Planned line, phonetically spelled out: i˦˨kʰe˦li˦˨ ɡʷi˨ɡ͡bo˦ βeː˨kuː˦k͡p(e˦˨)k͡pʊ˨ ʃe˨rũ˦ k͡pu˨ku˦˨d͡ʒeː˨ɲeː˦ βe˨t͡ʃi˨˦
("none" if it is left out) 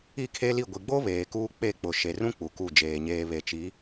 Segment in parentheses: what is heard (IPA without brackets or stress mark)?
e˦˨